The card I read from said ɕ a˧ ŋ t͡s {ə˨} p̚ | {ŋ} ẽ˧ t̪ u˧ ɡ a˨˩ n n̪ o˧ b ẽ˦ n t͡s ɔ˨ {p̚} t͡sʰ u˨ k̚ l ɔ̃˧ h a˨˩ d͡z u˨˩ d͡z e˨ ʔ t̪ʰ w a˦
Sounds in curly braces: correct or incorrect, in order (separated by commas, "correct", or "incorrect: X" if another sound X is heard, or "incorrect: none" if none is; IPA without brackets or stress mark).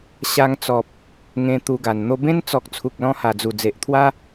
incorrect: ɔ˨, correct, incorrect: k̚